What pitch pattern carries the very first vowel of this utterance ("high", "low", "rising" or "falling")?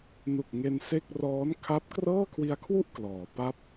low